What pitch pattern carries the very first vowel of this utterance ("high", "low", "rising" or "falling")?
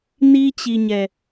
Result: high